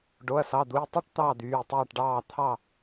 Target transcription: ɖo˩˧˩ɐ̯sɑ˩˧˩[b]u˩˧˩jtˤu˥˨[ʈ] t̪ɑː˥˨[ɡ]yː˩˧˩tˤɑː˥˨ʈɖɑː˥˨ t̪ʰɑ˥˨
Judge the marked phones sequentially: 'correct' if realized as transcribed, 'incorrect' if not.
incorrect, correct, incorrect

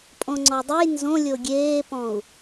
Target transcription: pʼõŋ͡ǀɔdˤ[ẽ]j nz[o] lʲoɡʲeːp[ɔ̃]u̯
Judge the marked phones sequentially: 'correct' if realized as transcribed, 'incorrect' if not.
incorrect, incorrect, correct

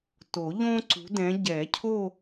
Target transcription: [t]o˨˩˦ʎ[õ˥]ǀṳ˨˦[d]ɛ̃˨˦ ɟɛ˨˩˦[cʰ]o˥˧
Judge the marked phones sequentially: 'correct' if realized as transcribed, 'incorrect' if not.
correct, correct, correct, correct

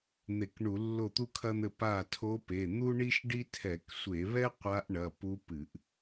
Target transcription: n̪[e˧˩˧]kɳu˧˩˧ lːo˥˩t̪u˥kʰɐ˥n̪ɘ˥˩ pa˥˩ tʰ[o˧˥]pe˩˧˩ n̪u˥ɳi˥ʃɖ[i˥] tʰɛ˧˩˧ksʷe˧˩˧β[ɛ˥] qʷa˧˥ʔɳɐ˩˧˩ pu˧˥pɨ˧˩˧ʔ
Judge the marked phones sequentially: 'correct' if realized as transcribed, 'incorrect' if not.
correct, correct, correct, correct

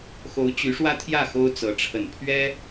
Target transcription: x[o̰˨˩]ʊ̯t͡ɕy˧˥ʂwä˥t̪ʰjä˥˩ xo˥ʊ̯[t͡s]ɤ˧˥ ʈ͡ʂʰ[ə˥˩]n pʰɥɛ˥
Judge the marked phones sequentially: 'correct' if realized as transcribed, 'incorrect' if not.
incorrect, correct, incorrect

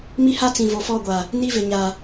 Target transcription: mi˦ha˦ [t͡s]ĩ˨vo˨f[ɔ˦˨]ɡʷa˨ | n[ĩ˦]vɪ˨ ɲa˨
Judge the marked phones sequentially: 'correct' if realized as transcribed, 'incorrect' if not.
correct, correct, incorrect

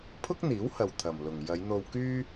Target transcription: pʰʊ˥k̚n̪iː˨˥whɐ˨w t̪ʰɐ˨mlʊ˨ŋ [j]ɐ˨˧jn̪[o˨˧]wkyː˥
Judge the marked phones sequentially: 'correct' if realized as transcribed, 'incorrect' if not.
correct, incorrect

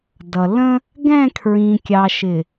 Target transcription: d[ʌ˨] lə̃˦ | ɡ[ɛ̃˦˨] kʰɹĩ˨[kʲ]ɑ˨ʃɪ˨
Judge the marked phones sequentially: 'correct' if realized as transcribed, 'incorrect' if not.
correct, correct, correct

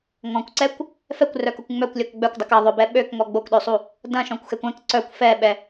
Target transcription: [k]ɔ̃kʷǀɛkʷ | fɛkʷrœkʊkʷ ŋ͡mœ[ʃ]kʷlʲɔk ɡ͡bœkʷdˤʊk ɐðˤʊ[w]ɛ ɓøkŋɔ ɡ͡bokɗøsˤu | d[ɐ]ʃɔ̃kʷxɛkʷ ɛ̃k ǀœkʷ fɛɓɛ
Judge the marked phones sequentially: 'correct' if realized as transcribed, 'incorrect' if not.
incorrect, incorrect, incorrect, incorrect

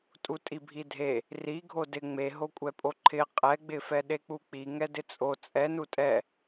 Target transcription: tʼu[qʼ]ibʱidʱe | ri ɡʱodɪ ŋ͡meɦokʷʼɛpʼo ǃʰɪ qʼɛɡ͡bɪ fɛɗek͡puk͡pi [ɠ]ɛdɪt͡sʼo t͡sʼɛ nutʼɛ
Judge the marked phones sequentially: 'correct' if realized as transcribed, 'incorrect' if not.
incorrect, incorrect

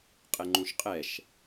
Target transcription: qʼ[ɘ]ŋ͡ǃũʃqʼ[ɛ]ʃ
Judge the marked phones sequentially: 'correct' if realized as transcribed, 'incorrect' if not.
incorrect, correct

